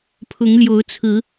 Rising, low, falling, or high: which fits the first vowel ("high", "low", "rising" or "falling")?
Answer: rising